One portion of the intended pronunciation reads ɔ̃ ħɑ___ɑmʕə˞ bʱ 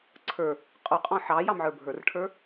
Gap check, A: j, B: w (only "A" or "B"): A